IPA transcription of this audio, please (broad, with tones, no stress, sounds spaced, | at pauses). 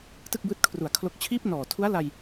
t ɯ˥˩ k̚ b ɯː˦˥ t̚ kʰ r u˨˩ a̯ kʰ l o˦˥ k̚ t͡ɕʰ iː˦˥ p̚ n ɔː˨˩ tʰ u˦˥ a̯ l a˧ j